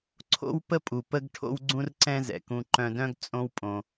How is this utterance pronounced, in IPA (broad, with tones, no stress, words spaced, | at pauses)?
ǀʰo̰˦wpə˦pʼu˨ pə˦ɡ ʈʰo̰˦wɡ͡ǀũ˦r ǀɛ̃˦zɛ̰˨ kũ˧ǃœ̃˧dœ̃˦ɡ t͡sʼõ˦wpʼõ˧